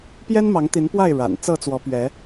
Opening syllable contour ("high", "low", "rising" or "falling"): high